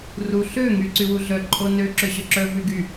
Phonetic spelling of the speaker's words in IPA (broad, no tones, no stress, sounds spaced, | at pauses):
r u ɬ ø ŋ y ǀ y w u ɮ œ ǃʼ o n ø ǁ ø ɕ œ ǁ œ v y ɡ y